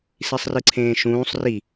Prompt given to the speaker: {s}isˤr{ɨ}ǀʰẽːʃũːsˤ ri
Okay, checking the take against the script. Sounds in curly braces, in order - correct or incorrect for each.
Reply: correct, correct

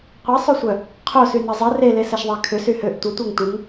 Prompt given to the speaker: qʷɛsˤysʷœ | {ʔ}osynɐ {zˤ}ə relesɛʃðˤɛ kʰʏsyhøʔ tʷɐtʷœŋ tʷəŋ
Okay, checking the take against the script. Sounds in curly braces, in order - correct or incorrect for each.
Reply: incorrect: qʰ, correct

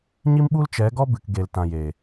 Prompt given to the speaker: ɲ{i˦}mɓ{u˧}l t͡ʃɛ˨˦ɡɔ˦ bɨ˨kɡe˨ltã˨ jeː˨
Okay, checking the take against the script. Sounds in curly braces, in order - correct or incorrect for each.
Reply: correct, incorrect: u˦

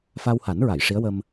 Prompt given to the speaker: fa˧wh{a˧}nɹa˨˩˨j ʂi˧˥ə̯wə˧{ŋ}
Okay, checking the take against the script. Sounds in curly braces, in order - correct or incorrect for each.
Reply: incorrect: a˨˩˦, incorrect: m

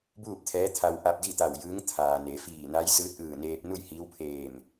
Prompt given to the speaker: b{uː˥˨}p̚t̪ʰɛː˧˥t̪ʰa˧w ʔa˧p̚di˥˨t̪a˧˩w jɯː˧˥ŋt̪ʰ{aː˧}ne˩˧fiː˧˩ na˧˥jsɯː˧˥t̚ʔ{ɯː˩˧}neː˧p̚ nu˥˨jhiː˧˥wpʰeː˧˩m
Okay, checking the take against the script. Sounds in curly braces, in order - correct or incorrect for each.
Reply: correct, incorrect: aː˩, incorrect: ɯː˧˩

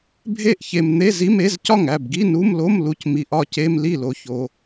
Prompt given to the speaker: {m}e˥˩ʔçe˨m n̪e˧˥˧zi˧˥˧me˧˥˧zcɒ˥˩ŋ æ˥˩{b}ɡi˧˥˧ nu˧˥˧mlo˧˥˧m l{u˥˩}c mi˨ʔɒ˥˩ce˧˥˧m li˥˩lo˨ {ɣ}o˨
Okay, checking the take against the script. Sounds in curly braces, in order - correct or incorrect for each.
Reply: incorrect: bʱ, correct, incorrect: u˨, incorrect: ç

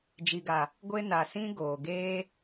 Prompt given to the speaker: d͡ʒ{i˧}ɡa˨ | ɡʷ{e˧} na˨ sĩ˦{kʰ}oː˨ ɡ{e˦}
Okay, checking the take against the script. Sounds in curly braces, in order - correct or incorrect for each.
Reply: incorrect: i˨, correct, incorrect: ɡ, incorrect: eː˦

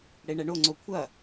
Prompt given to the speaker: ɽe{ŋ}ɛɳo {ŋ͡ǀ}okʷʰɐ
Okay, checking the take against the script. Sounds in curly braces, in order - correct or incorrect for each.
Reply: incorrect: ɳ, correct

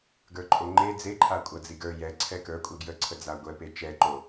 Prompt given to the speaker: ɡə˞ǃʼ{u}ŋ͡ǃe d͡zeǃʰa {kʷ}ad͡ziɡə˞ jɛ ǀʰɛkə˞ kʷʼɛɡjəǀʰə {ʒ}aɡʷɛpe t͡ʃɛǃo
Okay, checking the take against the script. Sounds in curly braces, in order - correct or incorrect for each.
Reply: incorrect: o, incorrect: kʷʼ, incorrect: d͡z

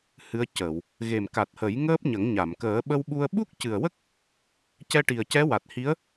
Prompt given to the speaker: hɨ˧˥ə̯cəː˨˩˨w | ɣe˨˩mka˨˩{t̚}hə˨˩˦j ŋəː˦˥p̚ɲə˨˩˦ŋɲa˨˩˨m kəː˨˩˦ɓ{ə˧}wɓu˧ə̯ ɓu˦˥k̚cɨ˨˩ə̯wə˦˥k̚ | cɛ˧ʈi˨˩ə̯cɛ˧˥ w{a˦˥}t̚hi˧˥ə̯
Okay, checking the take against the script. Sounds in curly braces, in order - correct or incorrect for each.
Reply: correct, correct, incorrect: a˨˩

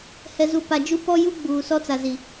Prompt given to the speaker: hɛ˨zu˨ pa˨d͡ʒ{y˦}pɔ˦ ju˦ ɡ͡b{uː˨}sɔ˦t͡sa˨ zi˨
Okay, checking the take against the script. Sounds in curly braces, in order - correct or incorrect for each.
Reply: incorrect: u˦, correct

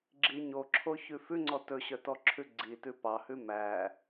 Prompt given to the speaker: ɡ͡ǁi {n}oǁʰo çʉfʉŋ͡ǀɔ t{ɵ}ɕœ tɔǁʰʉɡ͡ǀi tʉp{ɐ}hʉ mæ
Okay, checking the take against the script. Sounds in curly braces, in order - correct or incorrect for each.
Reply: incorrect: ɲ, correct, incorrect: ɑ

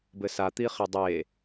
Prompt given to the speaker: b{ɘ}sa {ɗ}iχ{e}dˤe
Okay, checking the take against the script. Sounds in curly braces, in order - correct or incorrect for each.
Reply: correct, incorrect: t̪, correct

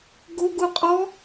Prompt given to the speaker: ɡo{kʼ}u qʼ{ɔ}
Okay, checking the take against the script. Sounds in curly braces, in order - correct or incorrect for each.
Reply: incorrect: ɡ, correct

